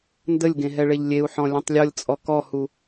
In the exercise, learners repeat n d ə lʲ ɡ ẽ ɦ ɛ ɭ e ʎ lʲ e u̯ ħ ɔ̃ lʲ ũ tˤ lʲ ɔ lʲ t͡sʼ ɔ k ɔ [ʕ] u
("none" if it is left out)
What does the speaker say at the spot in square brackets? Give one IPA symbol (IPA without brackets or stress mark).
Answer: h